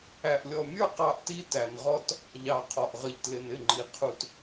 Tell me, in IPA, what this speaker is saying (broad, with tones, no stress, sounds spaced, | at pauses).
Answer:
æ˨ ʔ lʲ ɔ˨ mʲ ə˞˦ q ɑ˦ ʔ t i˦ t æ˨ n ʁ ɔ˦ t | ʎ ɑ˨ qʰ ɔ˨ ʔ ʁ ə˨ ʎ t l ɪ˨ n ɪ˦˨ ŋ͡ǃ i˨ qʰ u˨ t